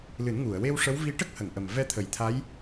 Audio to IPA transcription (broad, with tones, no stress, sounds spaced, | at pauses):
l ɨ˨˩˦ n ŋ u˨˩˨ ə̯ w e˧ w ʂ ə˧˥ w v i˧ ʈ ə˦˥ k̚ h ə˨˩˨ ŋ ʔ ə˨˩ m v ɛ˧ t̪ʰ ə˨˩˨ j t̪ʰ a˧˥ j